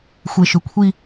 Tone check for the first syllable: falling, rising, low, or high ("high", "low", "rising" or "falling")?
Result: low